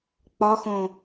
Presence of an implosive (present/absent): absent